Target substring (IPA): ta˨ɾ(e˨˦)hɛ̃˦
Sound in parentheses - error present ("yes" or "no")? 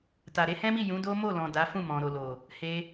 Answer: no